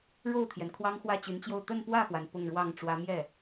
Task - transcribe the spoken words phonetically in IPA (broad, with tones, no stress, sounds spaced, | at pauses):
ɻ o˥˩ ʊ̯ t̪ʰ j ɛ˩ n kʰ w ɑ˥ ŋ x w ä˥˩ t͡ɕ y˧˥ n t͡ɕ j o˥˧ ʊ̯ t̪ ə˥˧ n p w ä˥˩ x w a˩ n p ʊ˥˧ ŋ ɻ w ɑ˥˩ ŋ ʈ͡ʂ w ä˧˥ m j ɛ˥˩